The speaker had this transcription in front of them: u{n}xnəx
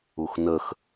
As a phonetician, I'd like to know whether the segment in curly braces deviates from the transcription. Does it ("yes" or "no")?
yes